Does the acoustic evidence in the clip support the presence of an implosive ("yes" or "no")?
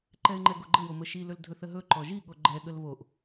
yes